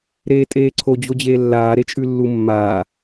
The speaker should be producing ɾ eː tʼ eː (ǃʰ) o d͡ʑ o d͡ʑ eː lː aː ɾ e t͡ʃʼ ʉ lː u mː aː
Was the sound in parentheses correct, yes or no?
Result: no